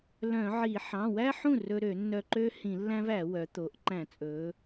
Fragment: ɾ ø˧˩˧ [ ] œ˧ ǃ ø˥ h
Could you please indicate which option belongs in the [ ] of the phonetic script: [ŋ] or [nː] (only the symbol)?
nː